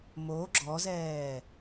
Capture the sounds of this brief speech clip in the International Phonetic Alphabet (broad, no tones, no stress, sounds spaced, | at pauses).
m o ɡ͡ǁ ɔ z ɛː